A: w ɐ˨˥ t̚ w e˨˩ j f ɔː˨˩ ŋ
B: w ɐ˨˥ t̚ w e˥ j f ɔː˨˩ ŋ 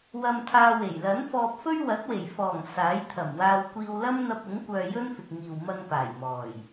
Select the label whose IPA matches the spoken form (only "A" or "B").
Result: A